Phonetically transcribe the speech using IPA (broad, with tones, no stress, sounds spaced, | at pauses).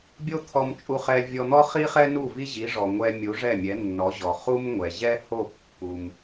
bʲ o˥ t̪ʰ ɔ˧ m t͡ʃʼ u˧ χ ɛ˧ vʲ ɔ˧ n̪ ɔ˥ χ i˥ χ ɛ˥ n u˥˩ v i˥ ʑ i˩˥ ʐ ɔ˩ ŋʷ ɛ˧ mʲ u˩˥ ʐ ɛ˥˩ mʲ ɛ˩˥ nː ɔ˩˥ ʑ ɔ˩ χ u˥ m ŋʷ ɛ˩ ʑ ɛ˥ h o˥˩ pː u˩ m